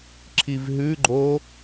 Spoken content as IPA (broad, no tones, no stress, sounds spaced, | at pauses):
ǁʰ i v ɦ ʉ ɡ͡ǃ o